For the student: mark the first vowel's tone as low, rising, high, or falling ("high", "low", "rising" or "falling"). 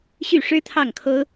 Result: falling